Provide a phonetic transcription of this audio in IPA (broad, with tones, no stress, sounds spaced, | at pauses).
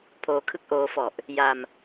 pʰ oː˧ kʰ ɯ˥˩ k̚ ʔ oː˦˥ f ɔ˨˩ ʔ | j a˧ m